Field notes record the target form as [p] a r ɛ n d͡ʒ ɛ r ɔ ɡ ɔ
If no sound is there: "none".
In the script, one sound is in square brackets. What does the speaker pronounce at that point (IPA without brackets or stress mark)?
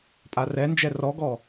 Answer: pʼ